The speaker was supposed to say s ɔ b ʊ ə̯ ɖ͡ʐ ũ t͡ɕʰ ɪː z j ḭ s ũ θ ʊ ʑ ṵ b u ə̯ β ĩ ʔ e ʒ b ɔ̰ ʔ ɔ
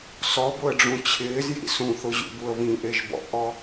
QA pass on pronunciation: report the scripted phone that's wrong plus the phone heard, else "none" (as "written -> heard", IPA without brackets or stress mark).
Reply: none